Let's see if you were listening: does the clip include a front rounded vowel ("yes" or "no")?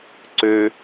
yes